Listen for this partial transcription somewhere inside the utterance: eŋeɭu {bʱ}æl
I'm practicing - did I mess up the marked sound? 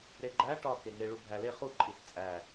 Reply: no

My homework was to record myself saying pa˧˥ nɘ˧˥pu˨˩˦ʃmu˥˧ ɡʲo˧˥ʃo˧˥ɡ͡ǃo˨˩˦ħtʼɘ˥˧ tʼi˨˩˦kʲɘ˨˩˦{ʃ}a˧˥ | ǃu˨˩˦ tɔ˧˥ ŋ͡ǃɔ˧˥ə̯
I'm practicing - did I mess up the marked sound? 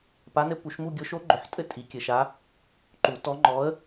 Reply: no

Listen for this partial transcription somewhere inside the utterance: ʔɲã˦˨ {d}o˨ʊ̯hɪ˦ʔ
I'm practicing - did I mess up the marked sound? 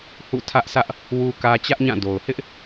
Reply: no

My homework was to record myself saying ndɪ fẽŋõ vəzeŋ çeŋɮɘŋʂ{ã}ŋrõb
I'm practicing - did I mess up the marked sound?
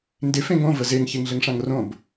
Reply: no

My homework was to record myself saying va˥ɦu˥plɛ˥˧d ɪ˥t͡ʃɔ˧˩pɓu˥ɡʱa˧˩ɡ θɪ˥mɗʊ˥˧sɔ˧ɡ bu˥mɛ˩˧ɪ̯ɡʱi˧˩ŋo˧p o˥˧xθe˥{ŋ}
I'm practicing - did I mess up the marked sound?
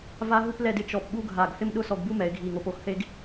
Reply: yes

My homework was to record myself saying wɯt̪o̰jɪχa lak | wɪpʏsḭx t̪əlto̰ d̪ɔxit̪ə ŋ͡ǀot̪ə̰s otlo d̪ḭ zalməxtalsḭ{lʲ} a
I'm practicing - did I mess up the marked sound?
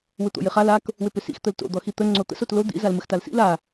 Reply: yes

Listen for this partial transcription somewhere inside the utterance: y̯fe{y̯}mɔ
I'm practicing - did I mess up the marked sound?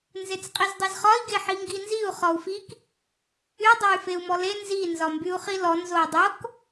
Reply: yes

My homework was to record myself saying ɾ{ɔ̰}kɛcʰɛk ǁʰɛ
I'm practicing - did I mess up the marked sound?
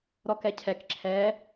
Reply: yes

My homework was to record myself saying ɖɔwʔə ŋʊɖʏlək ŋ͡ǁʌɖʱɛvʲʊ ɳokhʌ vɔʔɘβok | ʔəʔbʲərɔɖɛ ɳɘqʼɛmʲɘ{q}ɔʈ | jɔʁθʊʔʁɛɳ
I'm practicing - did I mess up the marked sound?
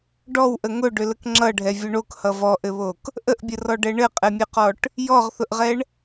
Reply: no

